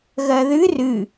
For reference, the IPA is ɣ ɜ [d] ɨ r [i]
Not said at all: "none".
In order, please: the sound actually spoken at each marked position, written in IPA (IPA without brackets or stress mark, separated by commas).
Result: ð, ɨ